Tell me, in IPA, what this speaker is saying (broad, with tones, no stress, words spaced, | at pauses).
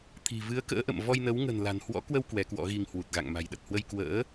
t̪ʰi̤˨˩vɨ˨˦ə̯ kə̰ː˧˥ʔə̰˧˨m vɔ˧jnə˨˦w ŋə̤˨˩nla̤˨˩nhwɔ̰˧˥kwə˧w kwɛ˨˦kwɔ̰˧˥ɣi˧ŋ hwu˨˩t̚ɣa̰˧˨ŋ ma̤˨˩jɗə˨˩t̚hwə˧j kwə̰ː˧˥